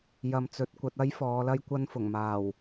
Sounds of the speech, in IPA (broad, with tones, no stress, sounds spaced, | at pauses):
j ɐ˨ m t͡s ɵ˨ t̚ kʷ ɐ˧ t̚ ɐ˥ j f ɔː˨˧ l ɐ˥ j kʷ ɐ˥ n f ʊ˨˩ ŋ m aː˨˩ w